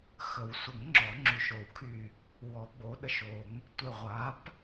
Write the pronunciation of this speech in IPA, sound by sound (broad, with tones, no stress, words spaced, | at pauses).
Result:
xə˨˩˦w sʷə˨˩˦ŋ ŋ͡ǁɔ˨˩˦ŋ͡ǁy˨˩˦ʃo˨˩˦wkʰy˧˩ | wɔ˨˩˦ɡ͡bo˩˥ɗə˧˩ʃ o˨˩˦ŋ | tʷe˧˩ ʁʷa˩˥p